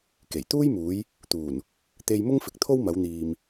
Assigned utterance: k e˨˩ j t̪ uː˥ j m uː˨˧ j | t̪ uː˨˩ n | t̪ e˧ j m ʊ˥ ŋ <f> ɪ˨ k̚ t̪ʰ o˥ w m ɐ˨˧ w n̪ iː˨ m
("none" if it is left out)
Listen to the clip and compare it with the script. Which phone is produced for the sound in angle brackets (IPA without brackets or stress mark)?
f